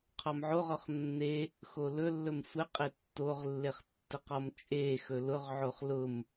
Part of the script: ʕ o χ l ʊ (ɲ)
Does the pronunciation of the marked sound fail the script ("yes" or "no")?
yes